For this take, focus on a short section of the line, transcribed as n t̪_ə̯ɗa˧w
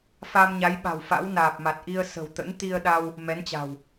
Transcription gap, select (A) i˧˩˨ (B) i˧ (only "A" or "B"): B